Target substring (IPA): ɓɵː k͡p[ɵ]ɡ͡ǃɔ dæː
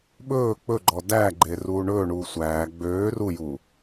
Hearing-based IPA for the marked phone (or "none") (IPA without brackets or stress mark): ɵ